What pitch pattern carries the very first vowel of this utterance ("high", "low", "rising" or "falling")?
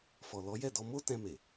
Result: low